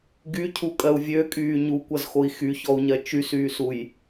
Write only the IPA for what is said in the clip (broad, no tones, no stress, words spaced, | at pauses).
ɡycʰukʼɜu̯ vʲøkʼyː ɲukʷʌzxoi̯ xyçɔu̯ɲɜ t͡ʃysyːsuj